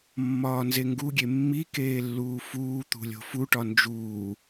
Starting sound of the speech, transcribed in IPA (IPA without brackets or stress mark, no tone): mː